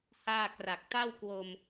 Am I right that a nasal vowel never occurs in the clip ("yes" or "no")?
yes